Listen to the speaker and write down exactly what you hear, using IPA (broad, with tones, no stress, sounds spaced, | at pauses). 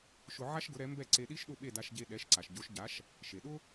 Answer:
ʃ ʊ˧ ʕ a˥ ʃ ɡ ʊ˩˥ ɾ ɛ˩˥ m b ɛ˥˩ ǀ e˧ ɗ i˥ ʃ ɗ ʊ˥˩ ɓ e˥˩ d a˧ ʃ ɟ e˧ ɗ ɛ˩˥ ʃ ǀ a˩ ʃ ɟ o˩˥ ʃ ɟ a˩˥ ʃ | ʃ e˩ ɗ ʊ˥